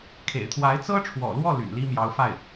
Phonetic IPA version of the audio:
kʰ ḛ˨˩ ɪ̯ t̪ʰ w a˧˥ ɪ̯ t͡s ɤ˥ ʈ͡ʂʰ w ɔ̰˨˩ l w ɔ˥˩ l y̰˨˩ n l i˥ m j ɑ˧˥ ʊ̯ f a˥˩ ɪ̯

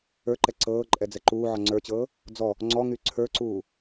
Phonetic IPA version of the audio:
ə˞ ǃ ɛ ǀ ɤː ǃʼ ɛ d͡z ɛ ǃ uː ʕ ɔ ŋ͡ǀ ə˞ t͡ɕ ɤː | d͡z ɔ | ŋ͡ǀ ɔ ŋ y ǀʰ ə˞ ǀ uː

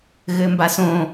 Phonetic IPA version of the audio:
ɣ ɘ m b a s õ

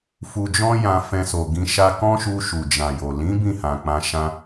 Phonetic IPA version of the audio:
f u˧ d͡ʒ ɔ̃˦ j ã˧ f ɛ̃˧ s o˨ ɡ ĩ˧ ʃ a˦ k ɔ̃˦ ʃ u˧ ʃ u˨ d͡ʒ ã˨ j o˨ l ĩ˨˦ b ĩ˦˨ h ã˨ k͡p ã˧ ʃ ã˧

